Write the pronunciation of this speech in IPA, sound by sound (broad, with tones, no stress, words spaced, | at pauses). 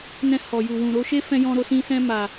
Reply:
nɛ̃˧ hɔ˨ju˨wũ˨ ɾo˧ʃe˦ fɛ̃˧jɔ̃˧ɾo˧sĩ˧ sɛ̃˧ ma˨